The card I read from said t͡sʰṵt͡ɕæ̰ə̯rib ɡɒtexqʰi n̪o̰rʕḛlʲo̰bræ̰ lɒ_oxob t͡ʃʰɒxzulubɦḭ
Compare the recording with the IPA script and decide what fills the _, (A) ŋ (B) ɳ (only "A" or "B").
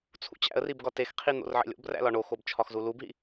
B